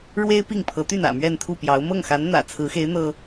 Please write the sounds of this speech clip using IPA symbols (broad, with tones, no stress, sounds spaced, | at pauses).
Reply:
ɻ w e˥ ɪ̯ p i˥˩ ŋ pʰ ɤ˧˥ t̪ y˥˩ n ä̰˨˩ m ɥ ɛ˥˧ n t̪ʰ u˥˩ p j ɑ˧˥ ʊ̯ m ɤ˥˩ ŋ x a˧˥ n n̪ ä̰˨˩ t͡sʰ ɹ̩˧˥ x e˧˥ ɪ̯ n̪ ɤ˥